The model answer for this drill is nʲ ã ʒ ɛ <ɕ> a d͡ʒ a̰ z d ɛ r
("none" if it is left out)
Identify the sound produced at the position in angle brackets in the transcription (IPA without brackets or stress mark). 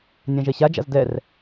ɕ